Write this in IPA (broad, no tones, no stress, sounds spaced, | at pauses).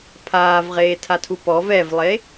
pʰ aː v ʁ eː tʰ a tʰ u p ɔ v ɛ v lˠ e